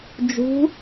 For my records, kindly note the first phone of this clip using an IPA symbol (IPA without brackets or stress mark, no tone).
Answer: d͡ʒ